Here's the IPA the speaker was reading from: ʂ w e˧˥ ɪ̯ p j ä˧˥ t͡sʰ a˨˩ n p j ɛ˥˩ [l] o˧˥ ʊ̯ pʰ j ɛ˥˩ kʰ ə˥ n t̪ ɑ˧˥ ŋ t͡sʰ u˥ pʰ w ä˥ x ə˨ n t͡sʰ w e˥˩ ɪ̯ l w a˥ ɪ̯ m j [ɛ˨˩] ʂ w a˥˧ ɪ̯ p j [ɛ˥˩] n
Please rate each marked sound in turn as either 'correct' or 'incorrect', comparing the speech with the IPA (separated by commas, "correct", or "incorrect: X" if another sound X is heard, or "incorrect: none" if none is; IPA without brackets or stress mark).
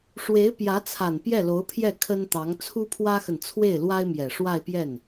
correct, correct, correct